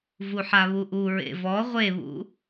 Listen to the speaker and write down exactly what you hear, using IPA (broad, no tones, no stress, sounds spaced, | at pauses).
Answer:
v u ħ a β u ʔ u ɹ ḛ v ɔ ʁʷ e β ṵ